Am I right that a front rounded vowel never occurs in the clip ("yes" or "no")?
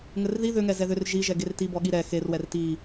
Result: no